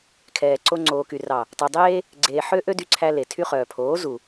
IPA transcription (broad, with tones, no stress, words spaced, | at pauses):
kʰɛː˨ǀo˧ ŋ͡ǀoː˨ky˨ rɑ˨ | tˤy˨dˤeː˦ | ɡ͡ǀeː˨ħø˧ ʔø˦dy˧ ǀʰæ˧le˨tʰy˦χœː˨ pʰoː˨˦ zu˨